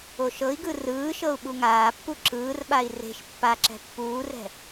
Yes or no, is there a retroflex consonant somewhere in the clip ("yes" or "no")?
no